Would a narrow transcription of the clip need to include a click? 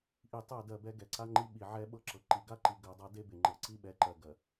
yes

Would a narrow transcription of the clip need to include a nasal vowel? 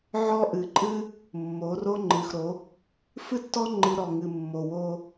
no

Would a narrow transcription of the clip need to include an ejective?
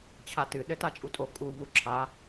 yes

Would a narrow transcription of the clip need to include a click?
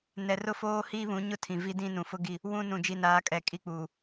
no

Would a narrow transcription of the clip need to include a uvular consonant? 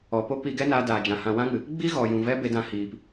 no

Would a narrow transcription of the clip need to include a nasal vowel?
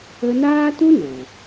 yes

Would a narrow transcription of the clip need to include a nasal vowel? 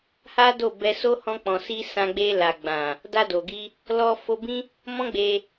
yes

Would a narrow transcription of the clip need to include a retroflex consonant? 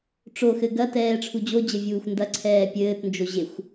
yes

